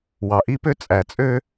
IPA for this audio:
wɑ˨ʔi˦pø˦ t͡sʼæ˨t͡sʼø˦

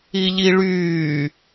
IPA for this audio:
iʎiɭyː

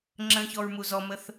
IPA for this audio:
ŋ͡ǁə̃çɔɹ muzɔməθ

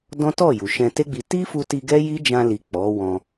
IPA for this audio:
dɔ̃˦tɔ˦˨ ju˨ʃɛ̃˧te˦ɡ͡bi˧ ti˦fu˧ti˧ ɡɛ˦ji˦d͡ʒã˧li˨ k͡pɔ˨˦wɔ̃˧

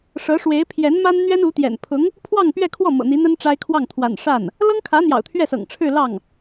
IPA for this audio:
ʂɤ˧˥ʂwe˧˥ɪ̯ pʰjɛ˧˥nma˥n n̪ɥɛ˥nu˧˥t̪jɛ̰˨˩n pʰʊ˧˥ŋ | pʰwɑ˥˧ŋpɥɛ˥˧kʰwɔ˥˩ mɤ̰˨˩n̪i˧˥n̪ə˥n ʈ͡ʂa˥ɪ̯ kʰwɑ˥˩ŋt̪ʰwa̰˨˩n ʂa˥˩n | lɤ˥ŋkʰä˧˥ n̪jɑ̰˨˩ʊ̯t̪ʰɥɛ˥˩sɤ̰˨˩ŋ ʈ͡ʂʰɻ̩˥˧lɑ˥˩ŋ

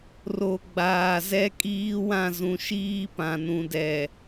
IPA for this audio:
ro˨ ɡ͡baː˨zɛ˦ kʼiː˦wã˦˨zũ˨ʃiː˦ pã˨nũ˨dɛ˨

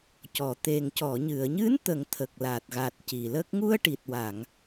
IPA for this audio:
cɔ˨˩˨t̪e˨˩ŋ cɔ˨˩˨ɲɨ˨˩˨ə̯ɲɨ˧˥n t̪ə˨˩˦ŋt̪ʰə˨˩k̚la˨˩t̚ɣa˨˩t̚ ci˨˩lə˦˥k̚ ŋu˧ə̯ʈi˨˩t̚wa˨˩˨ŋ

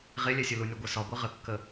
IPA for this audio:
ʁelʲɛsʲɵ lunʲɒɡʷesɒ ɡʷɛʁəkːə

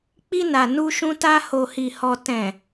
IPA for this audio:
k͡pi˧na˨ nu˧ʃũ˧ta˧ ho˨hi˨hɔ˨ tɛ̃˨

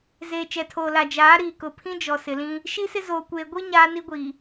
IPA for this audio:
zeː˨t͡ʃɛ˨tʰoː˨ la˨d͡ʒaː˨˦ ɾiː˨kʊ˨pʰĩ˦d͡ʒɔ˨ sɪ˨lĩ˦ | ʃi˦sɪ˦zoː˨ kʷeː˨ɡʷi˦ ɲaː˦ni˦ɡʷi˨

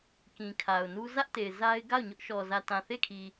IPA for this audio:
kĩ˨kʰa˨ʊ̯nu˦ zä˦ʔte˨ɪ̯ za˦ɪ̯ ɡa˦˨ʊ̯ɲʊ˦ʔʃɔ˨ zä˨tã˨θe˦˨kʰi˨

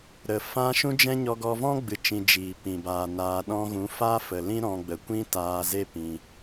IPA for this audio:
ɾə˨ fã˦ ʃũ˦d͡ʒɛ̃˦ ɲɔ˧ɡɔ˧vɔ̃˦ ɡ͡bɨ˨t͡ʃĩ˨ d͡ʒiː˨pĩ˨ baː˨ naː˧ ɗɔ̃˧ɣũ˨˦ fa˦fə˨lĩ˦ ɾɔ̃˧ɡ͡bə˨ kʷĩ˦taː˧ze˦ pĩ˧

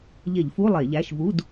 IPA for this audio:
ʎe˧˩˧ʎfu˧˥˧ lˠe˧˩˧ʎæ˧˥˧ʃ vu˧˥˧d

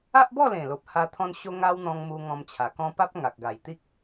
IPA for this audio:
a˦ʔbɔ˥˧lẽ˨˩lo˨p̚ ha˧ t̪ʰɔ̃˧n ɕo˦ŋa˦wn̪ɔ̃˧ŋmu˧ ŋɔ̃˧mt͡ɕʰa˨˩kɔ̃˦ pa˦p̚ŋa˨k̚ɡa˨˩jt̪i˦k̚

